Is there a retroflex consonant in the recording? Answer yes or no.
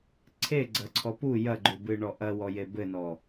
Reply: yes